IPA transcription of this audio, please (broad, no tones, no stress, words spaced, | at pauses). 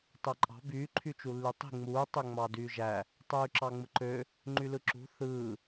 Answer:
tɑǃʼɑ̤ by ǃʰyt͡ʃulːytˤi̤ ŋ͡muː tˤøŋ͡mɑdyːʒæ | tˤyːǁɑŋ͡mɯǃø | ŋ͡ǃylɯǁṳ θɯː